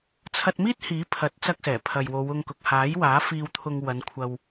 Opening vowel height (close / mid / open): open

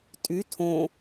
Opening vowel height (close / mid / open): close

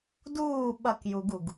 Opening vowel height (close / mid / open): close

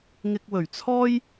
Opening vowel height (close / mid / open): close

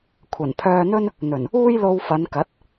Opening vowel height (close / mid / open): open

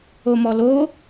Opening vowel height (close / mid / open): mid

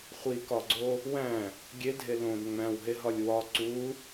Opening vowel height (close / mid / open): close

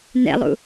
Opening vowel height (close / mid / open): mid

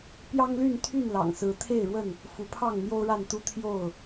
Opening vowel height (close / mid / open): open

